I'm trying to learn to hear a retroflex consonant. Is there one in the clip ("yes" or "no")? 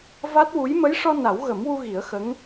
yes